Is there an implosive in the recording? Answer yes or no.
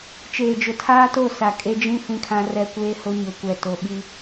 yes